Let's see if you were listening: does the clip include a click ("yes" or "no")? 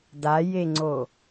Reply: yes